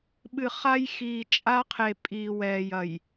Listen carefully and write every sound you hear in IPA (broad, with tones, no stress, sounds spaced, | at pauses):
ɓ ɨ˨ χ a˦ j x iː˨ t͡ʃʼ a˦ qʰ e˨ pʼ iː˨ w ɛː˨ j ɐ˨ j